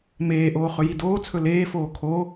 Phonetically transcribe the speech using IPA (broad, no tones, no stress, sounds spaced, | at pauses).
m eː ʔ oː χ ɵ j i d oː t͡sʰ ɵ l eː f oː kʰ o